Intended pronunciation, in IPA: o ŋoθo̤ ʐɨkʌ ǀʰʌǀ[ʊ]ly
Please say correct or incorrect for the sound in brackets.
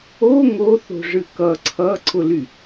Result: correct